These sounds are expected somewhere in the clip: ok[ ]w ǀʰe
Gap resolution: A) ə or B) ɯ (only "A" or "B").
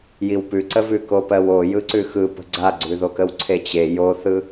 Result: A